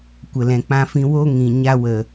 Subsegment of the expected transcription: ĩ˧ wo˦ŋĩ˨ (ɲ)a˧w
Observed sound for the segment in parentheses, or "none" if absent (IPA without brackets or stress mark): ɲ